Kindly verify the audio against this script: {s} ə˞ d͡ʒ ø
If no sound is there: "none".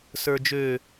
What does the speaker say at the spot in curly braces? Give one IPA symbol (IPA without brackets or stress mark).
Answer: s